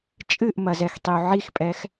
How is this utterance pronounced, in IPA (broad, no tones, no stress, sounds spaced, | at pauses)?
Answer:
t͡ʃʼ ɨ ʔ m ɐ z ɛ x tˤ i u̯ ʕ i x pʼ ɛ x